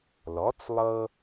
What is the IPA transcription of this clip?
lɔ˩˥t͡slˠɤ˧

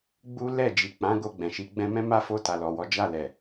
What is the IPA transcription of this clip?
ɡ͡bu˦lɛ˦˨ d͡ʒi˨ k͡pã˨˦ɡo˧ ɡ͡bɛ̃˨ʃi˨˦ ɡ͡bɛ̃˧mɛ̃˦ma˦fo˧ ta˨lɔ˨wɔ˨˦ d͡ʒa˦˨lɛ˨

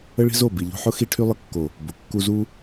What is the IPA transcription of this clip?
ə˦ɭi̤˦zo˦˨ bi˨ʎo̤˧ħʊ˦ xi˧ʈʰy˧lˠə˧kːo˨ | bʊ˨ kːu˧zu˦

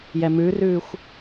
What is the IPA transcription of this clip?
jɛmʉrʉxʷ

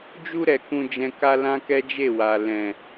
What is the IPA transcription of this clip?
d͡ʒu˧ɾɛ˨ kũ˧d͡ʒɛ̃˧ka˦ lã˦kɛ˦d͡ʒe˦˨wa˨ lɛ̃˨

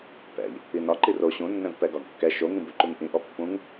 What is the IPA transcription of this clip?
pɛ̰ʎ | inɒ ǃiro ɕũnːɛ̃v pɛɡɒɡkːɛ ʃoŋĩbʉ ǃuŋʔĩ ʔɔpːũŋ

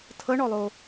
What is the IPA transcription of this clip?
tʰɤɳɔlˠo

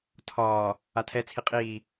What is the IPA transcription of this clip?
tʰɒː | atʰɛ t͡sʰiqʼiː

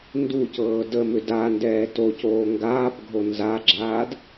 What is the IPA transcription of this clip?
nducɤː dəmʏ dandɛː tocoː ŋɡaːpɡʱo nzaɡ͡ǁaːd

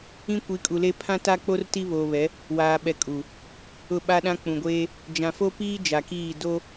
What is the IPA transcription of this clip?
ĩ˦kʷi˨˦kʼu˨le˦ pʰã˦ta˦k͡po˦r ti˦βoː˨βɛ˨˦ | waː˨ɓɛ˨ kʼu˨ | ʊ˦˨ɓa˦ɗã˦ k͡pũ˨ɡʷeː˦ | d͡ʒã˨fo˦piː˦ d͡ʒa˨kiː˦˨ do˦

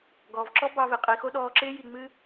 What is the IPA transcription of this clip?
ɡɔː˨vǁɔ˦ bɑ˧ve˨qʼi˨ xo˦ɗɔː˧ǁɪː˦ ji˨ŋ͡mɨ˧

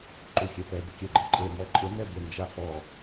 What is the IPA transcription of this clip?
ǃuxʲɛpɛ bʊkʲɛɡ͡ǃeǃʼe mɔǃʼɪ nɛbɪ nd͡ʒafɔ

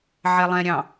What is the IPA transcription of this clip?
ʕɛlˠɛ̃ ɾʲɑ̃

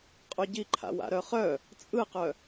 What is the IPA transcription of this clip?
qʼoɟiǃʰa̰wa̰ ɾœχœ | t͡sʼɯqœ

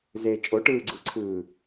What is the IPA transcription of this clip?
ze t͡ʃʼoʈɯːɡ͡ǀɯǀʰɯː

